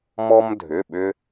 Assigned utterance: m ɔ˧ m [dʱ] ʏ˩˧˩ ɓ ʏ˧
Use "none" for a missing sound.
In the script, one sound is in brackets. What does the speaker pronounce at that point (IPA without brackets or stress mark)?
dʱ